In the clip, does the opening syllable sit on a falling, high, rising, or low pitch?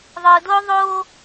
low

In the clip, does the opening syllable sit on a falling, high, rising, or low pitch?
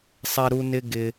high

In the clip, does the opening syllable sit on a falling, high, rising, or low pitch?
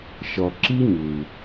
low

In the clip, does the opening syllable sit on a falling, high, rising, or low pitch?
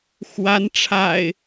rising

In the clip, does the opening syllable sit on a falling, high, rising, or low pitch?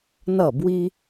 falling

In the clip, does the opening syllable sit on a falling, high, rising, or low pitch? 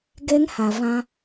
high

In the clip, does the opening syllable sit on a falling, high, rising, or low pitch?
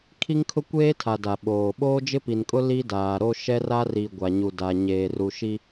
high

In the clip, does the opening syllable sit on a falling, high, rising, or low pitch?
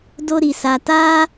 high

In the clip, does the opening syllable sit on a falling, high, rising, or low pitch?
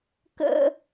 high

